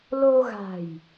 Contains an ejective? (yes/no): no